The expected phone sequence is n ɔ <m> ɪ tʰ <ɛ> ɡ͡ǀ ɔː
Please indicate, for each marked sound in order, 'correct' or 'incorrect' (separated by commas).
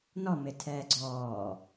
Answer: correct, incorrect